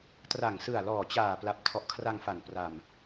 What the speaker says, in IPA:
t r a˨˩ ŋ s ɯ˨˩ a̯ l ɔː˨˩ t͡ɕ aː˨˩ p l a˨˩ p̚ tʰ ɔ˨˩ ʔ kʰ r a˧ ŋ f a˨˩ n p r a˧ m

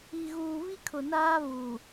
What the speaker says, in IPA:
i˨ ɣ uː˨ β i˦ kʰ ʊ˨ n aː˦ β u˨

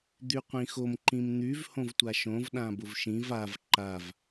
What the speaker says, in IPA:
d̪ y qʷ ĩ x o m ǃ ĩ m n̪ y v h õ v tʷ a ʃ õ v ɗ ã b ʊ v ʃ ĩ v a v ǃ a v

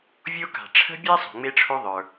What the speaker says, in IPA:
vʲ o˥ k a̤˩ ʈ͡ʂʰ ə̤˥ bʲ ɛ˥ sˤ o̤˩ ŋ͡m e˥ ʈ͡ʂʰ o˥ ðˤ ə˞˩

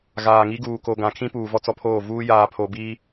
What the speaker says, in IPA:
ɣ aː˨ ŋ i˦ ɡ uː˨ k o˨ ɡ ã˨ kʰ ĩ˦ p uː˨ v ɔ˦ t͡s ɔ˦ pʰ oː˦˨ v uː˦ j aː˨ pʰ o˨ b iː˦

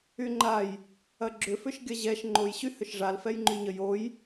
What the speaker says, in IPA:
y ŋ͡ǃ a j | ɐ ɡ͡ǁ ʏ f ʏ ʃ ɡʲ ɐ ʑ ɛ ʃ ŋ͡ǃ o j ɕ y h ʏ ʃ ʐ a l f ɛ j ŋ͡ǃ y ɲ ə j o j

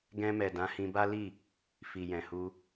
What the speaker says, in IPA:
ɡ ɛ̃˧ m ɛ˨ d ã˨˦ h ĩ˧ b a˦ l i˦˨ | f i˨ j ɛ̃˨ h u˧

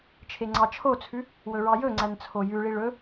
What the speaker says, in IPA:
t͡ʃʰ e ŋ͡ǀ ɑ t͡ʃʰ o t͡sʰ ʉ | w ɵ ɹ ɑ j ɵ ŋ͡ǀ æ n t͡sʰ o j ʉ ɭ i ɭ ɵ

